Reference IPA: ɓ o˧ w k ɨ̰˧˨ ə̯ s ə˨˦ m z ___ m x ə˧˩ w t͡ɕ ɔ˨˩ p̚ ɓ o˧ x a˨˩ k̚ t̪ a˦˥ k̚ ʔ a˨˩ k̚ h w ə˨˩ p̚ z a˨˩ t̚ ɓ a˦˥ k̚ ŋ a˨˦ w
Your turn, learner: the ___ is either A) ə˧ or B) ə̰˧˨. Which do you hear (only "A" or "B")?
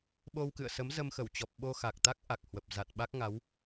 A